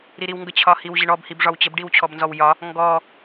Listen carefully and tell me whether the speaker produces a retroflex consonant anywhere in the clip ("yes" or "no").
yes